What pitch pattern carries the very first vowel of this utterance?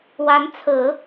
rising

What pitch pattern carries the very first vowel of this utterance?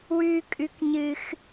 high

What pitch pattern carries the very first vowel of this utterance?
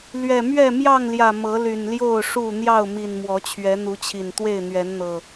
low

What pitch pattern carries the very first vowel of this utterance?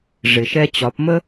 low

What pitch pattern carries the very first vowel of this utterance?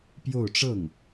falling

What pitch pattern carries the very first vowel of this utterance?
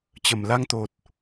low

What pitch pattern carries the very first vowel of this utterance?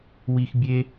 high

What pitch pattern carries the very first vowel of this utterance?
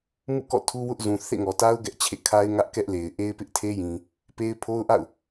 falling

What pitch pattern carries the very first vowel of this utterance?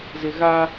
low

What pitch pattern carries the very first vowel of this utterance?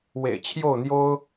low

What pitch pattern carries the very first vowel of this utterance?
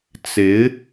rising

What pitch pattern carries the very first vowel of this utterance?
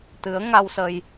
rising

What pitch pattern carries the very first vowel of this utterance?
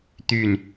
falling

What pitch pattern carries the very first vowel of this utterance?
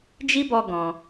high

